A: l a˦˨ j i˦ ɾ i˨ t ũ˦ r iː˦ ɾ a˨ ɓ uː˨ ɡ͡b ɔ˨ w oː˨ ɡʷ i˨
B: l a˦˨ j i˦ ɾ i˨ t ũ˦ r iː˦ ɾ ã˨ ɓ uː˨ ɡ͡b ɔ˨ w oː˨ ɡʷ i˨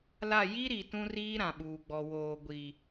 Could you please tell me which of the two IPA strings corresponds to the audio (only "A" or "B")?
B